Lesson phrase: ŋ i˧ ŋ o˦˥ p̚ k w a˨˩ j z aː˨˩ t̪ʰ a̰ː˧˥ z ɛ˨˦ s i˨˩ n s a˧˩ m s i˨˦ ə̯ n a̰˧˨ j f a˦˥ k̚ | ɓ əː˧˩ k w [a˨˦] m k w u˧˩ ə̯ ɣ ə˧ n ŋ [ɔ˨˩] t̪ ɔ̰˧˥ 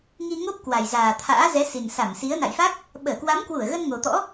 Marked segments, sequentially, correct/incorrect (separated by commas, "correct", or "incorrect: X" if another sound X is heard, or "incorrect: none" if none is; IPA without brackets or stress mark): correct, incorrect: o˨˩